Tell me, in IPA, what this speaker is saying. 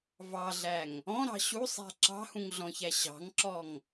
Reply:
v ɑ ɮ æ ŋ | ɔ̃ ɾ ɑ̤ ɕ u sˤ æ̤ ǁ ɑ̤ h ũ ŋ ɮ ɔ̃ ç æ ɕ ɑ̤ ŋ ǁ ɔ ŋ

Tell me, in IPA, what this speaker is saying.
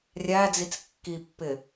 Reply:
rʲ æ d͡z i t͡s kː i pː ɪ

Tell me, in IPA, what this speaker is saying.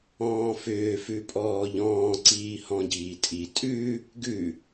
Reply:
ɔ̃ː f ʏː f ʉ pʼ ɔː ʎ ɔ̃ː ǀ iː h ɔ̃ ɟ iː tʼ i tʼ ʉ | ɡ ʉ

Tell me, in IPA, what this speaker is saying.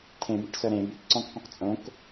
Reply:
tʰ ẽ b e ʈ s œ ɾ ẽ b y k ǀ ɔ̃ k q ũ q t͡sʼ õ k

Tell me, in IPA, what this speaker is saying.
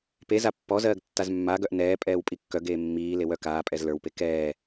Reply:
p e z a pː ɔ z ɜː ɡ tː a z mː a ɡ œ ʔ n ɛː pʼ ɛː w pʼ i kː œ ɡ eː mː iː l e w œ k aː pʼ ɛ z l ə˞ w p e k ɛː

